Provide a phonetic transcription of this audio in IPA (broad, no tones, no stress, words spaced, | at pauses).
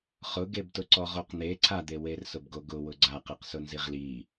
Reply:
χʊɡebtʊ ǀɔʁoqn̪e ǀʰad̪ewer sʊbɡoɡʊ wʊɡ͡ǀaqeqsʊ nziʁli